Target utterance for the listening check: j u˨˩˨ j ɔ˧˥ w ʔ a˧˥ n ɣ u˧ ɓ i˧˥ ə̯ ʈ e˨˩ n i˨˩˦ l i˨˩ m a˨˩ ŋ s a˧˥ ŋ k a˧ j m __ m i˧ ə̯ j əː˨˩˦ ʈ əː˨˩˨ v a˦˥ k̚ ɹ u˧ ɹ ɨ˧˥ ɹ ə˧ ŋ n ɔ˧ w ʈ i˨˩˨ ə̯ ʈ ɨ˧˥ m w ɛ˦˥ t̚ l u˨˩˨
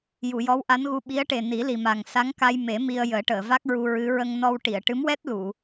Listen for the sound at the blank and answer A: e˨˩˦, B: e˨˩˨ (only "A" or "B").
A